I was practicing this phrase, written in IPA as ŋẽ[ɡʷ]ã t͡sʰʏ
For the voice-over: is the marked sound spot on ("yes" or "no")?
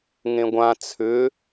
yes